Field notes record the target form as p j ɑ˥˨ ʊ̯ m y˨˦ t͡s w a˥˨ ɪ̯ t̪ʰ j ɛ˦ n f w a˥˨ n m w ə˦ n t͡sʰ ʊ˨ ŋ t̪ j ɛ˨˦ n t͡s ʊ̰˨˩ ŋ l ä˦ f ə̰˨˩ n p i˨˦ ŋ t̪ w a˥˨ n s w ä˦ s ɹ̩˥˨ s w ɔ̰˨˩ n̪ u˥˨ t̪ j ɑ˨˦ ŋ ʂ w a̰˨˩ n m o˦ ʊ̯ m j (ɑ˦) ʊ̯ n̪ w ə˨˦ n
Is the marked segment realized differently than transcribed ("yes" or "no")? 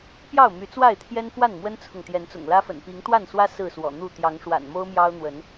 no